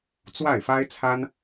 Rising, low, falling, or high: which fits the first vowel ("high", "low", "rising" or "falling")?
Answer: falling